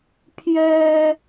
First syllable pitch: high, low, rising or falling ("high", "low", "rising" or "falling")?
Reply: high